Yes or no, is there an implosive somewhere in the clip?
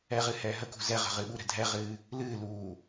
yes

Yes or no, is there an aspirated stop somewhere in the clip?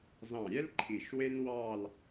yes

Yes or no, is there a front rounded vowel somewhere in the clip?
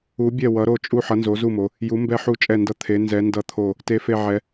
no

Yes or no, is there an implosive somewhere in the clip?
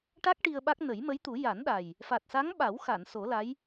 yes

